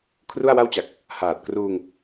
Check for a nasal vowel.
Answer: absent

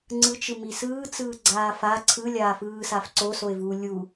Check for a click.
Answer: present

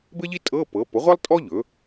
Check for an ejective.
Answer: present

